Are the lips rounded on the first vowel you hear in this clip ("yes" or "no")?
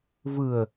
no